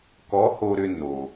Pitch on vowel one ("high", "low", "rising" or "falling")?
rising